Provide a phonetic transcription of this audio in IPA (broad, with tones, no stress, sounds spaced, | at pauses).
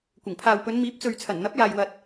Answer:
kʷ ɪ˨˩ ŋ pʰ aː˨ w p ɵ˨˧ n m iː˨˥ p̚ t͡s ɵ˨ ɥ t͡sʰ ɐ˨˩ n n̪ ɐ˨˥ p̚ j aː˨ j w ɐ˨ t̚